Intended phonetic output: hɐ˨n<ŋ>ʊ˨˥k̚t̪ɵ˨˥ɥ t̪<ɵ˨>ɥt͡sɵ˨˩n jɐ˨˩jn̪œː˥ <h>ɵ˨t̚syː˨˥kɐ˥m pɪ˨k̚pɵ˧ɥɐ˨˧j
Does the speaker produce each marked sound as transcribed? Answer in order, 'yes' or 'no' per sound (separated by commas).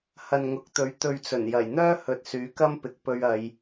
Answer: yes, yes, yes